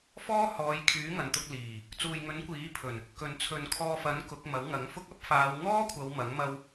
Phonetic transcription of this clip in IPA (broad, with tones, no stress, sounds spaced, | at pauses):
f ɔː˥ h ɔː˨˧ j kʰ yː˨˥ ŋ ɐ˨ n t̪ ʊ˧ k̚ l iː˨˩ | t͡s uː˨ j ŋ ɵ˨˥ n kʷ iː˨˥ pʰ ɵ˨˩ n | k ɵ˨ n t͡sʰ ɵ˨ n kʰ ɔː˧ f ɐ˨˥ n k ʊ˨˥ k̚ m ɐ˨˥ w ŋ ɐ˨˥ ŋ f ʊ˥ k̚ ɐ˥ p̚ f aː˨˧ w ŋ ɔː˥ kʷʰ ɐ˨˧ w m ɐ˨˥ ŋ m ɐ˧ w